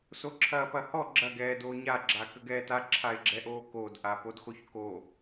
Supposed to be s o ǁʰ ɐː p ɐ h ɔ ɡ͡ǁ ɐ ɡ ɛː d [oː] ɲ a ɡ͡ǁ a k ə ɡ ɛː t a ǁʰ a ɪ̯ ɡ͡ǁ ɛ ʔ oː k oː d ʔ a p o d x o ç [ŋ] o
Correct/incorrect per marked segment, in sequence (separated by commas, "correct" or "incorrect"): correct, incorrect